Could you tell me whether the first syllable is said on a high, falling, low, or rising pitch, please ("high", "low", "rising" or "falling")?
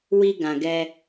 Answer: high